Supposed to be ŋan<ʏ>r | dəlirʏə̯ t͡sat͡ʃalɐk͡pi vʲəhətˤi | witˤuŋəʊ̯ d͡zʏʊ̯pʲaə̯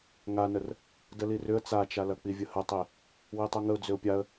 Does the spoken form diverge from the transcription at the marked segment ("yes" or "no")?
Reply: yes